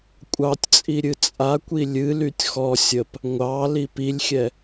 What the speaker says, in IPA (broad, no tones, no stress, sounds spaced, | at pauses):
kʷʼ ɑ tʲ t͡sʼ i ɾʲ ɨ t͡sʼ a kʷ i lʲ ɨ l y tʲ x ɔ sʲ ə p | ŋʷ ɑ l i p i lʲ xʲ ɛ